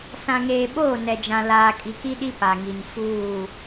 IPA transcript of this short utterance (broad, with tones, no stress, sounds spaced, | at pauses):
s ã˨ ŋ eː˨ ɓ oː˦˨ n ɛ˨ d͡ʒ ã˨ l aː˨ kʼ i˨ k i˦ ɗ i˦ p a˨ ŋ i˨ n f uː˦˨